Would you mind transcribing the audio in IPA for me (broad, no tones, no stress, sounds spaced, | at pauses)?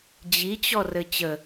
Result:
d͡ʑ i t͡ɕ ɔ r ɘ t͡ɕ ə